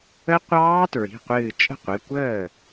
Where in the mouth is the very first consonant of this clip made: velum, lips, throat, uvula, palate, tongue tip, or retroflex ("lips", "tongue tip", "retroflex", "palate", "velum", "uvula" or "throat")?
uvula